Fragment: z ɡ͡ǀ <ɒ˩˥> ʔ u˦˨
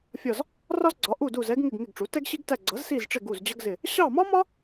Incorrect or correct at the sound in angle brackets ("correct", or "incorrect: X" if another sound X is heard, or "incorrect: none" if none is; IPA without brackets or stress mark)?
correct